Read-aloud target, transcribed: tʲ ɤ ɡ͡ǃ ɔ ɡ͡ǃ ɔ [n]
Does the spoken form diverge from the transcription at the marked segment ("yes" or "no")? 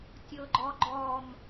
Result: yes